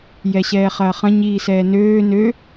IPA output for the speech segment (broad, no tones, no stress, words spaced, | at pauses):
jɛɕɛːχɐːχɐ̃ ɲiːsɛːnøː nø